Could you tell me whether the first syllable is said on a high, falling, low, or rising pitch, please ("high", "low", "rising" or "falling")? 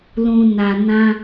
low